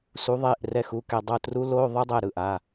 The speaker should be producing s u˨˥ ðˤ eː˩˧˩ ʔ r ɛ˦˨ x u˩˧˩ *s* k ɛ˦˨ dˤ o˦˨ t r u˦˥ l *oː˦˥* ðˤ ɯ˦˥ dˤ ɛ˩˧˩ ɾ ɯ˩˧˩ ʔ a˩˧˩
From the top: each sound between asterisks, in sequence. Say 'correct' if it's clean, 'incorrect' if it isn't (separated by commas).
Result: incorrect, incorrect